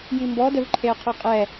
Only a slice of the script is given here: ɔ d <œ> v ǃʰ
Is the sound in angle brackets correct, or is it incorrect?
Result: correct